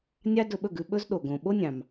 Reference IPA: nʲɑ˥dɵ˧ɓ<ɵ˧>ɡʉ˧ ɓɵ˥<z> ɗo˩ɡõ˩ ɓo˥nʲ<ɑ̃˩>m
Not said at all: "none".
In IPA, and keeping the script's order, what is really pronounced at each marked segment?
ɵ˥˩, z, ɑ̃˩

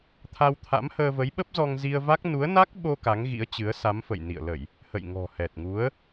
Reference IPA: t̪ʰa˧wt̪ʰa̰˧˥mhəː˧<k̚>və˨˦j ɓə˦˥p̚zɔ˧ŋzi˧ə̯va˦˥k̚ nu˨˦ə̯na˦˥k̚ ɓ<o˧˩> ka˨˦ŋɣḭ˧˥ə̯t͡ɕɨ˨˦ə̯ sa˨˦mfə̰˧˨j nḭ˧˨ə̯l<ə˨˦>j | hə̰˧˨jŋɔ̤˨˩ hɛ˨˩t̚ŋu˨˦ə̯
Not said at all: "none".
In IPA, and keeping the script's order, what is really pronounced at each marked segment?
none, o˧, ə˧˩˨

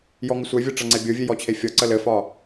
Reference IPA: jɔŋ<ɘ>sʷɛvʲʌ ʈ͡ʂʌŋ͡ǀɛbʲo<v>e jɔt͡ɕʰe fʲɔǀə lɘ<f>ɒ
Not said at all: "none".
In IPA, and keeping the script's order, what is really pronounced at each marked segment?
ɘ, vʲ, f

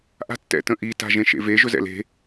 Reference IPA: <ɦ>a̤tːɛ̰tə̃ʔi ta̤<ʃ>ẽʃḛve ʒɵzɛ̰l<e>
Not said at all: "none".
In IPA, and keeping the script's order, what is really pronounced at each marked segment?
ʔ, ʒ, e̤

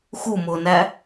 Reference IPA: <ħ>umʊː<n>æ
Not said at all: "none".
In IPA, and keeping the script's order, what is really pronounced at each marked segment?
x, n

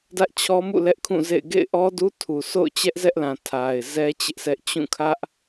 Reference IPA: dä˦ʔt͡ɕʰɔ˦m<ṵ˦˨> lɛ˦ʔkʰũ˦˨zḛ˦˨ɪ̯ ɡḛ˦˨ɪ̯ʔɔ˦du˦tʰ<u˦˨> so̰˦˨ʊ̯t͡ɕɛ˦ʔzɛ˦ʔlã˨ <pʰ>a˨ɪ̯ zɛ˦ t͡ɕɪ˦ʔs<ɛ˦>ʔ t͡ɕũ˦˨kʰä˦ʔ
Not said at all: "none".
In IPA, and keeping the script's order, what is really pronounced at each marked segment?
ṵ˦˨, u˨, tʰ, ɛ˦

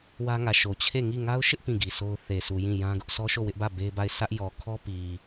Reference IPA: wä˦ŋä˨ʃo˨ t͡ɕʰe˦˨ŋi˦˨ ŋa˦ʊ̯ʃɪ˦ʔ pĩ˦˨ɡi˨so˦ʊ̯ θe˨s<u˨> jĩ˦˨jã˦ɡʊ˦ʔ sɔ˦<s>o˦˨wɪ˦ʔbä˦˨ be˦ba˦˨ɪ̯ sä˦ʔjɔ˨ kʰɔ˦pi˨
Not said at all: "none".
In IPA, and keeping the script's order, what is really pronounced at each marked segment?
u˨, ʃ

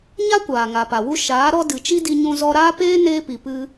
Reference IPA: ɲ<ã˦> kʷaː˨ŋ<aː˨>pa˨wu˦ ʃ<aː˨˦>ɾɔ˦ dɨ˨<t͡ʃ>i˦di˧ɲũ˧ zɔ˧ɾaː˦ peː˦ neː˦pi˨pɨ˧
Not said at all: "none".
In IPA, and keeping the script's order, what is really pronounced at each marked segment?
a˦, a˨, aː˨˦, t͡ʃ

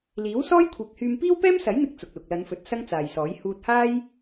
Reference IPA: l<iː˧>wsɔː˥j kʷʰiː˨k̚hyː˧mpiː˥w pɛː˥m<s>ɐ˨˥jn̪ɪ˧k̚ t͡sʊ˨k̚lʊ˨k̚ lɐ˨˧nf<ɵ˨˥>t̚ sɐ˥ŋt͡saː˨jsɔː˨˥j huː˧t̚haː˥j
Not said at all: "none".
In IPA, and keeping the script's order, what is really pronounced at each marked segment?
iː˨˥, s, ɵ˨˥

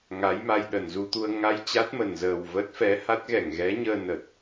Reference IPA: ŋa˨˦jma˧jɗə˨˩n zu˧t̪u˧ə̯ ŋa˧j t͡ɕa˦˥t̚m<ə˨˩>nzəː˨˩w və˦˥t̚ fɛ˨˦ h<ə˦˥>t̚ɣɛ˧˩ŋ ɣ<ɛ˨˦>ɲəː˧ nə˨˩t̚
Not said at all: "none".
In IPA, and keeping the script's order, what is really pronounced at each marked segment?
ə˨˩, a˦˥, ɛ˨˦

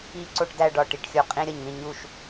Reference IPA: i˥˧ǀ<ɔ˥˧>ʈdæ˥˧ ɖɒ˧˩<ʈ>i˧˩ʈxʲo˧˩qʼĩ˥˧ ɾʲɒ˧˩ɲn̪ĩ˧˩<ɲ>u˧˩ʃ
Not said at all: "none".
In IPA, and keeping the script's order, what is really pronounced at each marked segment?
o˥˧, ʈ, ɲ

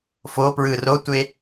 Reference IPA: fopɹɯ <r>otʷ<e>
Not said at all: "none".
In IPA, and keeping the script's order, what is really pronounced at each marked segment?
r, e

